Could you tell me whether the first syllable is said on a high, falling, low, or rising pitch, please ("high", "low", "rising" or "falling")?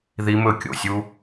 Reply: high